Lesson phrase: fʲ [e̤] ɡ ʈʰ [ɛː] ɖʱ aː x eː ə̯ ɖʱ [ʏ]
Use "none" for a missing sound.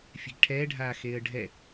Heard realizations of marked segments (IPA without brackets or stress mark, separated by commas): e̤, ɛː, ɛ